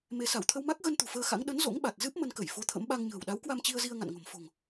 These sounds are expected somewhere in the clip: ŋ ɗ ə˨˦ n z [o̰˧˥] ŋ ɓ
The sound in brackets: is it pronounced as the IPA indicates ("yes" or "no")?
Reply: yes